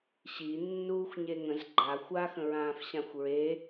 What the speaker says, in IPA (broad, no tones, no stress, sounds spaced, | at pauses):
ɕ i nː uː xʷ ɲ e ŋ ə̃ z ɡ͡ǃ a xʷ a x ə̃ ɹ ãː f ɕ ã xʷ ɹ e